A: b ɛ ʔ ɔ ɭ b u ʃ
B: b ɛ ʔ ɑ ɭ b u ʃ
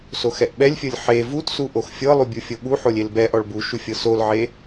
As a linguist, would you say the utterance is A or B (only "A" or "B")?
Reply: A